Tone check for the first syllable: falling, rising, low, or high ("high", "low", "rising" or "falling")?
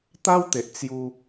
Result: high